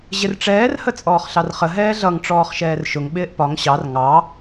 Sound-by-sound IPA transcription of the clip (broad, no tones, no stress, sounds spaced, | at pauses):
ʑ ɪ r ʈ͡ʂ ɛː r h ə t͡sʼ ɔː χ ɬ ɑ r χ ə ɦ ɛː ɮ ʌ ŋ ʈ͡ʂ ɔː χ ʃ ɛː r ʃ ʊ ŋ ɓ ɪː ʔ p ɒ ŋ ɕ ɑ r ŋ ɑ